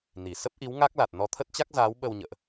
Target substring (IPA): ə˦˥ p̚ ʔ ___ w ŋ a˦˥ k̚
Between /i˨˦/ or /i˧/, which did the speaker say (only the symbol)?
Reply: i˨˦